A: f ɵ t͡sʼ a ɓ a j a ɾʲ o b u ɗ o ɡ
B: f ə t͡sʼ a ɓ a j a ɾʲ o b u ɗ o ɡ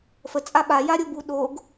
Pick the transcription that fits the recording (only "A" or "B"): B